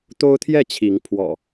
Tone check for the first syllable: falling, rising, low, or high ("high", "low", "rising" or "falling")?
high